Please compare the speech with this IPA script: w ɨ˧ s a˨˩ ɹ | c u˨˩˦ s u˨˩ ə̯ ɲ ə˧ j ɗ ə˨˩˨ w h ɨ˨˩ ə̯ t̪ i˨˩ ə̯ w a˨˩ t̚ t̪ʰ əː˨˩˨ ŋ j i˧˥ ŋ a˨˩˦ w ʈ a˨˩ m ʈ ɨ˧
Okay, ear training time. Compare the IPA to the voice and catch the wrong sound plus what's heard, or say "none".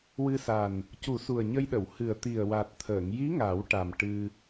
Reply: ɹ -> n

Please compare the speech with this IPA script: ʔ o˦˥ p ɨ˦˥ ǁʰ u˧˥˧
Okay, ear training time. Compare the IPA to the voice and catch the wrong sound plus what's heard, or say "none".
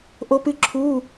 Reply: none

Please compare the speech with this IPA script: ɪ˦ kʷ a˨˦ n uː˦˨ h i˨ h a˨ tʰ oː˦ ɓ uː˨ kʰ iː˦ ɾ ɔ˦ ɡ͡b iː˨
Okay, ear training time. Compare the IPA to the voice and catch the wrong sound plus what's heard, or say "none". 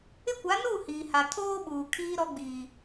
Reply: i˨ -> iː˨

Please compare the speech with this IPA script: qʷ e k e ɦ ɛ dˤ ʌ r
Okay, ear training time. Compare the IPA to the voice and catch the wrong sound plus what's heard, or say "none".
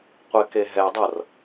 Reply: none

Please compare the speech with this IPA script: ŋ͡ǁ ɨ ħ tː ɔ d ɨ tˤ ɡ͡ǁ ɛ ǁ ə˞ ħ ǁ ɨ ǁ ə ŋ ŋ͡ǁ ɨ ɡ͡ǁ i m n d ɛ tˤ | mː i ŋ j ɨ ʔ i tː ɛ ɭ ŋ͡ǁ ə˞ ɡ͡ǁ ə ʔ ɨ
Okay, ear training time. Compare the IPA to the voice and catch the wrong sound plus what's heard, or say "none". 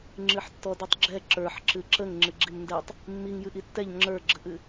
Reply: ɭ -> ʎ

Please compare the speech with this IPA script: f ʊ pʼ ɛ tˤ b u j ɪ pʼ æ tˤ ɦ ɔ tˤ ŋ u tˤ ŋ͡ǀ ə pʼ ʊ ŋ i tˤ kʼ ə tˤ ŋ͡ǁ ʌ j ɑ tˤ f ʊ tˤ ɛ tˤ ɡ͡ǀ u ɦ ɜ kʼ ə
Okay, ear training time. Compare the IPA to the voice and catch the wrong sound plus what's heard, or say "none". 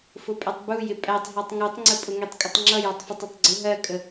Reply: none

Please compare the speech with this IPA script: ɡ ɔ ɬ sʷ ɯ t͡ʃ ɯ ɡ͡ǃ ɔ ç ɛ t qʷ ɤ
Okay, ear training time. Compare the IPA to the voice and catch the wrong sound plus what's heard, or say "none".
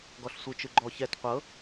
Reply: none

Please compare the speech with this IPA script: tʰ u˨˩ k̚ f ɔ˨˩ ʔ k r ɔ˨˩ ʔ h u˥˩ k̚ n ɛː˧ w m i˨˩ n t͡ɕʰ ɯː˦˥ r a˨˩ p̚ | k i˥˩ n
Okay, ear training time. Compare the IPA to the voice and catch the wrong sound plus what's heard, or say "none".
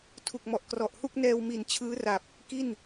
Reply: f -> m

